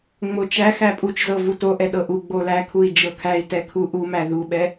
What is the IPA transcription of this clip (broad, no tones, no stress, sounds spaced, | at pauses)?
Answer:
ŋ͡m o t͡ʃ æ x æ pʼ u t͡ʃ z ɤ v u t o ʔ ɛ ɗ ɤ ʔ u ɡ͡b o l æ kʰ u i̯ d͡ʒ ɤ kʰ æ i̯ t ɛ kʰ u ʔ u m æ ð u ɓ ɛ